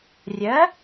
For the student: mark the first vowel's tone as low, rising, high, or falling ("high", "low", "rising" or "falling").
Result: rising